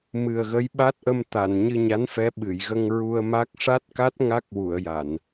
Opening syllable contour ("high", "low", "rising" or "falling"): low